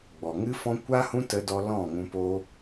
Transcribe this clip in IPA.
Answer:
ɡ͡b ɔ˨ ŋ ɨ˦ f ɔ̃˦ kʷ a˦ h ũ˦ t ə˦ d ɔ˦ l ɔ̃˦˨ ŋ ũ˧ p o˦

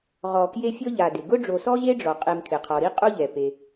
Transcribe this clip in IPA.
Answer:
ʁ ɔ˨ k j e˦ fʲ ɔ˥ ʎ a˨ d ɪ˩ ɡ ʊ˥ ɖ͡ʐ o˨ s ɔ˥ ʑ e˥ ɖ͡ʐ ɔ˩ qʼ e˨ m kʰ ɪ˩ qʰ ɔ˩ ɾ i˥ qʼ o˥ ʎ ɛ˩ p e˩

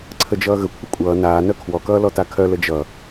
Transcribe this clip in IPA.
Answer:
ǀʰ ə d͡ʒ ʌː ɣ ə kʷʰ ə kʷʼ ʌː n aː n œ kʰ w ɔ k ʌː l ɔ t a kʰ œ l ə d͡ʒ ʌ

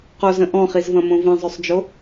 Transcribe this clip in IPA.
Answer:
q o z ə̃ ʔ ɔ̃ χ i z v ɐ̃ m õ v ĩ zˤ ø sˤ d͡ʒ o

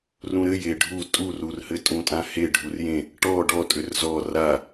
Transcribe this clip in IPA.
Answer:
r ũ ɾ ɘ j e ɖʱ u tʼ u r u r h ɘ tʼ ũ tʼ ã h e ɖʱ u r j ẽ | ʈ ɔ ɖ ɔ tʼ ʏ r z ɔ r a

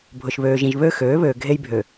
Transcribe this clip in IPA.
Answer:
bʱ ʊ˨ ʃ β øː˨ ʒ ĩ˨ ʒ β ø˦ x øː˨˦ β øː˨ ɡʱ e˦ j bʱ ø˨

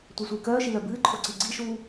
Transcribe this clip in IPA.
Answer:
tʷ œ sʷ ɨː k œː ʃ i l œ b ɨː ǃʰ o ǀ i ɡ͡ǀ i ʃ uː

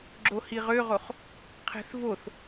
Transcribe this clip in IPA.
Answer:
ɡ͡ǁ o h i ʁ ø ʁ o χ | qʰ ɛ̤ θ v o θ

